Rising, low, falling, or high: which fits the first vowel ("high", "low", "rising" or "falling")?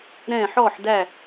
falling